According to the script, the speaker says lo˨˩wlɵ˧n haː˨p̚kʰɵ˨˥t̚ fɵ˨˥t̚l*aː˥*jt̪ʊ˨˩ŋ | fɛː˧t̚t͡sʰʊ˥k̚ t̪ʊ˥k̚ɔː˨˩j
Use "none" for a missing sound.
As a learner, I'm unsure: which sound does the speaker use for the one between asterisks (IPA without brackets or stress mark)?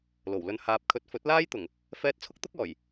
aː˥